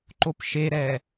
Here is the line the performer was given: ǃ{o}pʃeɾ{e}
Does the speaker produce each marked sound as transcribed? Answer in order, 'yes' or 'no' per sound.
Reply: yes, no

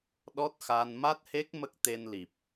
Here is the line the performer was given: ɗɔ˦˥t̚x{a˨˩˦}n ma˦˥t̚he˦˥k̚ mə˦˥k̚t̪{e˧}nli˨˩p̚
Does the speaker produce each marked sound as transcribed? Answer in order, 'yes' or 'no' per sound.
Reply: no, yes

